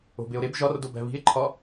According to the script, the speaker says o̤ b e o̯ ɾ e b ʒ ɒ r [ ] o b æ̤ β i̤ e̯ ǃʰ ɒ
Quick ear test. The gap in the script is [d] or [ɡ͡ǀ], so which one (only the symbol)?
d